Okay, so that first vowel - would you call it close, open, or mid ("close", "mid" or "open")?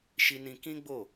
close